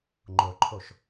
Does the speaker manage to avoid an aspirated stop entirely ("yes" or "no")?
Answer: no